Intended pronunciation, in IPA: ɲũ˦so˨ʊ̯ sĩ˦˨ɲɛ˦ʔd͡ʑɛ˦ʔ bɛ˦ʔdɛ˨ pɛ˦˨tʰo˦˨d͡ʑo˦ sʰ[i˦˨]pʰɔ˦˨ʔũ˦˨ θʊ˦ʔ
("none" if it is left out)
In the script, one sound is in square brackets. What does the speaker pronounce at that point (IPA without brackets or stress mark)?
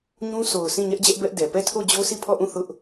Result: i˦˨